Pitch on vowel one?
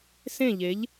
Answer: falling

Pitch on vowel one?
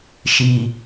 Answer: low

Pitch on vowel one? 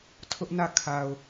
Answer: high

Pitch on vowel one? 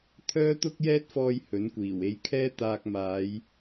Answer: high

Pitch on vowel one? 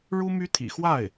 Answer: high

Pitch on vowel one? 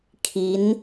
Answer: rising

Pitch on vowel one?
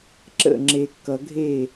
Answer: falling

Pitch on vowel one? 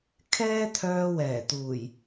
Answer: high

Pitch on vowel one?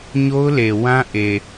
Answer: high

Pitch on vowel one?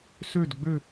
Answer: falling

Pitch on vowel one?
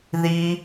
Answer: high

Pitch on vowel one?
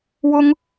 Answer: high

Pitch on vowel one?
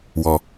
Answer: low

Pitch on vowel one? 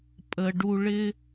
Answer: low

